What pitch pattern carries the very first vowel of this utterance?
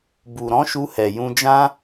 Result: low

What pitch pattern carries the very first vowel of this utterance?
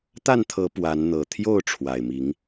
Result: falling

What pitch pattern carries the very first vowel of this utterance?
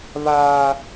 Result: high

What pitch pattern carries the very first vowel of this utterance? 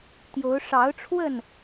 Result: rising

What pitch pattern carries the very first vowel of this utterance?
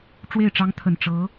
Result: falling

